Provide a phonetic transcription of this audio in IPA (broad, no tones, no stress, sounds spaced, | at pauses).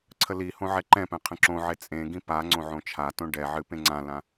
ǀʰ ə l i h õ ʕ ɛ ǃ ɛ̃ p ɛ̃ qʰ ə̃ ǁ õ ʕ e t͡sʼ ẽ ɡ ĩ p a ŋ͡ǀ õ ʕ õ t͡ʃʰ a t õ ɖ ɛ ʕ ɨ p ẽ ŋ͡ǀ ã l ã